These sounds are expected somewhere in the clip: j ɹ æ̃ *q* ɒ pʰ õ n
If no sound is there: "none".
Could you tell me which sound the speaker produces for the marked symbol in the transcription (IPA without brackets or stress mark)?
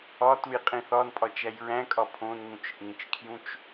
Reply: kʼ